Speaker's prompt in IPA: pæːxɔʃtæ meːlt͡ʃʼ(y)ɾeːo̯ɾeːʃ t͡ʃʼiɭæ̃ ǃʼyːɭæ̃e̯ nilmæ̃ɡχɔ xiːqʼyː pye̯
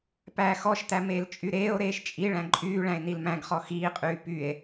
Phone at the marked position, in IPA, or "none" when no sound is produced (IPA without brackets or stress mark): y